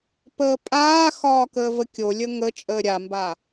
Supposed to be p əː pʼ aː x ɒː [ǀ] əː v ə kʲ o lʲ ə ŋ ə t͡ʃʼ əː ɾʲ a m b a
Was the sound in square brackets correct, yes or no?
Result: no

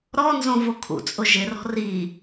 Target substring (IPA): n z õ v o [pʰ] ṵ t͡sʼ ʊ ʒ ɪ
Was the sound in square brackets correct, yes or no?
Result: no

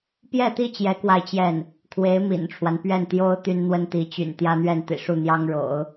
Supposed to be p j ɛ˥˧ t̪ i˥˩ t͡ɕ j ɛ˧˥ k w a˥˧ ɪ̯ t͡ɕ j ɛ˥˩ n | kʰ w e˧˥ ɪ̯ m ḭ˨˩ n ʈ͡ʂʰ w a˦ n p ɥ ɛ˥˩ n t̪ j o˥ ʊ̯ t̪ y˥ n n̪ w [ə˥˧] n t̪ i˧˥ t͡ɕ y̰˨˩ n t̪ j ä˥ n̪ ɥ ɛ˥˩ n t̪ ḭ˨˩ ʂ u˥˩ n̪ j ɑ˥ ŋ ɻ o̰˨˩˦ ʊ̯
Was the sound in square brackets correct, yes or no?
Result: no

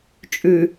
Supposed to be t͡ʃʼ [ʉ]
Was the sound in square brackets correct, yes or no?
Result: yes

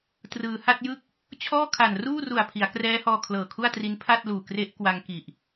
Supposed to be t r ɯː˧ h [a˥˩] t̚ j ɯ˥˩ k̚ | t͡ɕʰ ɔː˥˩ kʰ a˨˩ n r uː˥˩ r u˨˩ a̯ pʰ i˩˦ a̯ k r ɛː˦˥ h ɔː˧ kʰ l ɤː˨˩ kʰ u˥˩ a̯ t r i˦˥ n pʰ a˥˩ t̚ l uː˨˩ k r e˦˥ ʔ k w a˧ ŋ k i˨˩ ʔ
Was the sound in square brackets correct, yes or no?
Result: yes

